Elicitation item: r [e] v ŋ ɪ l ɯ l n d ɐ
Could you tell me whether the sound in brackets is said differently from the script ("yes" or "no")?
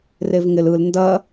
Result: no